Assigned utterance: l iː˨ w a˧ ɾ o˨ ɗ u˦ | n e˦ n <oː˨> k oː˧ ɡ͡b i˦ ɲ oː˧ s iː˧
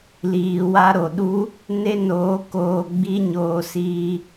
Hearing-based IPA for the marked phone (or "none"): oː˨˦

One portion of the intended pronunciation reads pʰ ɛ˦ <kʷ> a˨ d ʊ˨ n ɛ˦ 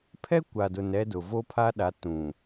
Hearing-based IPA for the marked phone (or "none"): kʷ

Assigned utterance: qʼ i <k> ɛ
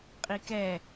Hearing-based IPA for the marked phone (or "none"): k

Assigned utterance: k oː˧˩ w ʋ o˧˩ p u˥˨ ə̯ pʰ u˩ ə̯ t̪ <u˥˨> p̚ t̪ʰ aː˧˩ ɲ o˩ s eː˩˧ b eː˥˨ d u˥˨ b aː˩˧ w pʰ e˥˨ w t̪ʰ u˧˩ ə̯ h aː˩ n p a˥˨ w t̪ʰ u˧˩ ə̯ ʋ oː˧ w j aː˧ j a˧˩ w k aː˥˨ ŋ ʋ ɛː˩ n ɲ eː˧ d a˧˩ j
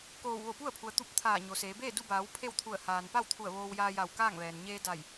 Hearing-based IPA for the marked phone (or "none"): u˥˨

